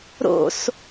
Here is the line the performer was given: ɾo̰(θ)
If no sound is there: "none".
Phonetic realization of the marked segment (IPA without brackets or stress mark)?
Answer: s